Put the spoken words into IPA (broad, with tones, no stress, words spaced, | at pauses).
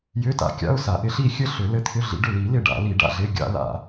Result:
jʏ˧˥˧ta̰˧˩kʲa̰˧˥˧ʊ̯sa˨˩˦ ʔɪ˨˦ ɬi˥˩ xʲɘ˥˩ɬʏ˨˩˦ lɘ˧˥˧t̪ʰʏ˧˥˧ɮḭ˨˦ɖʏ˥˩ li˨˩˦lɪ˧˩ ɖa̰˨˩˦li˨˩˦ɖa̰˧˩ɮɪ˧˥˧ ɡʲa̰˨˩˦la̰˨˩˦